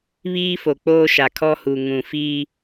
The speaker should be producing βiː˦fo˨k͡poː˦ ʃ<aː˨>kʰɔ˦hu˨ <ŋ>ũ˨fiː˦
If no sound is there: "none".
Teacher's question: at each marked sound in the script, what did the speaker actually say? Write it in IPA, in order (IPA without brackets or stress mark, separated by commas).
a˨, ŋ